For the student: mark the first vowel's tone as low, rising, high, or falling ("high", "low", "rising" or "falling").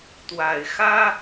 low